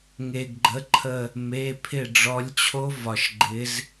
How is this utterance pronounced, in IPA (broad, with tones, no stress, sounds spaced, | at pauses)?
ŋ e˩ ɡ ɡ͡ǃ ə˩˧˩ ǃʰ ə˧˩ | m e˩˧˩ pʰ ɪ˧˩ ɖ͡ʐ ɔ˨˦ lʲ t͡ɕʰ o˦˥ v ɒ˩ ʃ ɡ͡ǃ ɪ˨˦ z